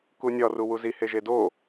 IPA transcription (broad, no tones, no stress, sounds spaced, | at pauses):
k u nʲ ɒ r u w u z i h e ʒ e d o